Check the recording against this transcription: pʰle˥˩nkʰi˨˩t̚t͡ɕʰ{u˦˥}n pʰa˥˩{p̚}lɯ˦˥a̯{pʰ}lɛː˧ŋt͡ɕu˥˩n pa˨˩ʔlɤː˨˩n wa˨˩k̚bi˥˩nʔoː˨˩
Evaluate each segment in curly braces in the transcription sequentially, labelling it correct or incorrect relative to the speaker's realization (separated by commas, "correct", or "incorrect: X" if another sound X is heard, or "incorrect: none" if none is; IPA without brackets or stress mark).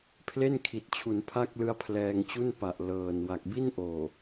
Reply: incorrect: u˩˦, incorrect: k̚, correct